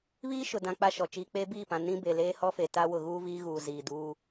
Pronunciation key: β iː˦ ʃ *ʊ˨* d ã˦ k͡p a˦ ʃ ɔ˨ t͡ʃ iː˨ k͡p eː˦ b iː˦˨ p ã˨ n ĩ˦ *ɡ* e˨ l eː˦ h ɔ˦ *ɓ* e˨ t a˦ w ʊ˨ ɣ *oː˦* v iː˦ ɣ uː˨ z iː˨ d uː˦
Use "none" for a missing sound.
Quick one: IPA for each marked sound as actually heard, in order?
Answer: ʊ˨, b, f, uː˦

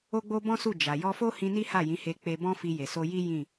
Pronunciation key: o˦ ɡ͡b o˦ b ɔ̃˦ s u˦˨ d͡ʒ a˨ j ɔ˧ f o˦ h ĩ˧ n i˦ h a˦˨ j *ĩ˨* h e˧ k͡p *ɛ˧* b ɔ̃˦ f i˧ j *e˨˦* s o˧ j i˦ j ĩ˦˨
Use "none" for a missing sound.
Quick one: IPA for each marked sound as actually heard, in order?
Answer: ĩ˨˦, e˧, e˨

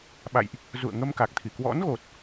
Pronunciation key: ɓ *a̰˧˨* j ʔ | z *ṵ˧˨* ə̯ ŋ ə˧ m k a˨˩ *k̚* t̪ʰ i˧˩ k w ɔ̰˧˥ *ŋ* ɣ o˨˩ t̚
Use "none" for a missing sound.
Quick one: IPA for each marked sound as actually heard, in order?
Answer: a̰˧˨, ṵ˧˨, k̚, n

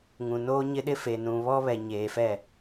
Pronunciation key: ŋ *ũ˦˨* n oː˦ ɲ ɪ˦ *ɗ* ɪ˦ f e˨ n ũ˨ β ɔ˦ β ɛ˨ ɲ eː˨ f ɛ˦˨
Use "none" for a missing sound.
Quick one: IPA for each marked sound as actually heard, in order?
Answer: ũ˨, ɗ

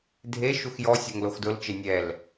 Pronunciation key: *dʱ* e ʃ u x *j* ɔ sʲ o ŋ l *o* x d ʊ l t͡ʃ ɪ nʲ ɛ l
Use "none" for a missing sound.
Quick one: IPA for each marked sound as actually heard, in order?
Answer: dʱ, j, o

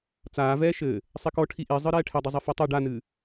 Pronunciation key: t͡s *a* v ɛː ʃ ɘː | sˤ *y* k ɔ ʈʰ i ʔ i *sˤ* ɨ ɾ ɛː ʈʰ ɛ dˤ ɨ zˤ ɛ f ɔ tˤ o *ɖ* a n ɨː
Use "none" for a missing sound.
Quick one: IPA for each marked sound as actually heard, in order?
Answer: aː, i, zˤ, ɖ

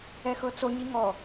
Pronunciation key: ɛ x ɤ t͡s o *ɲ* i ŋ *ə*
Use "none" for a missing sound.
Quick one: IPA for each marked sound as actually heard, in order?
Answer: ɲ, ɔ

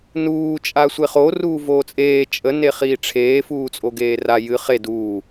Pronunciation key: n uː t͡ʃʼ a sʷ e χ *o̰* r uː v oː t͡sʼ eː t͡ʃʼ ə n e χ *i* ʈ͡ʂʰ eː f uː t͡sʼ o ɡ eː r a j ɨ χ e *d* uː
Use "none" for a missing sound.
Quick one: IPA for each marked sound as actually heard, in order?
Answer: o, iː, d

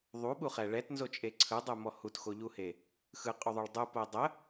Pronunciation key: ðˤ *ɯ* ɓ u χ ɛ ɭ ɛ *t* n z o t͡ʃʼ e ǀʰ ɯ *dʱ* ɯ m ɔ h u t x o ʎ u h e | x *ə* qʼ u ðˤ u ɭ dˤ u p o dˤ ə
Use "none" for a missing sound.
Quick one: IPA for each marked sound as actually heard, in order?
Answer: u, t, dˤ, ɯ

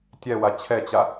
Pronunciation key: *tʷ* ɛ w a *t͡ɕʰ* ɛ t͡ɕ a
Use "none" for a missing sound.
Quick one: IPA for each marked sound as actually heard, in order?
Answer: tʲ, t͡ɕʰ

